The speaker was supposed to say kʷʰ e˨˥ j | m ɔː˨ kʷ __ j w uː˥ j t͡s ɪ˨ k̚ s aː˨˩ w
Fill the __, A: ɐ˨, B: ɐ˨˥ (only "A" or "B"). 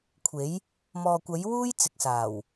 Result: B